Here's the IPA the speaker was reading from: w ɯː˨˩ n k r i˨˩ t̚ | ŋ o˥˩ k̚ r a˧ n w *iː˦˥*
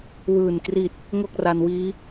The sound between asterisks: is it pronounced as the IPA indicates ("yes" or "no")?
yes